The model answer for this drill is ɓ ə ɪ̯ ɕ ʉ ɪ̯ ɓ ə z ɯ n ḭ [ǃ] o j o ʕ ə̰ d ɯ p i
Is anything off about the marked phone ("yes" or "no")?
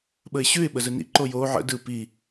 no